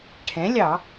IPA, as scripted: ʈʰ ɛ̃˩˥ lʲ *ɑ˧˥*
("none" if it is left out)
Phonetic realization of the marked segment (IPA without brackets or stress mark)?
ɑ˧˩˧